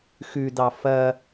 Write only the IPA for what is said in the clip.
xʉdɑ fɐ

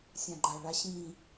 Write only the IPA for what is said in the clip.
sʲãɡ͡ǃa ɭaɕĩ

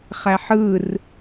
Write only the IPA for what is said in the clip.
χæħɯr

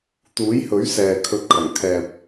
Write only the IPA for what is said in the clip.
t̪uː˨˥jhɵ˨˥ɥ sɛː˨kʰɵ˧t̚kʰɐ˨˩ŋ kʰɛː˨p̚

